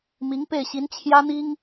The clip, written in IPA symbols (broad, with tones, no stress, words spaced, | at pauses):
mi˧˥ŋpe˥˩ɪ̯ɕi˧˥n t͡ɕʰjä˥n̪i˥ŋ